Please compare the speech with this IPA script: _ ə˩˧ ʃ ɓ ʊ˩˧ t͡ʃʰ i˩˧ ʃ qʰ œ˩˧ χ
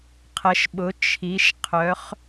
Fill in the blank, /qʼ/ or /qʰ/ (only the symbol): qʰ